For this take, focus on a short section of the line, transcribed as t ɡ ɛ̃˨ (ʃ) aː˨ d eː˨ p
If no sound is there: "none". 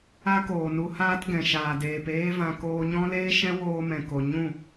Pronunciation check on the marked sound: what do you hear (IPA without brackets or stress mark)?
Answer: ʃ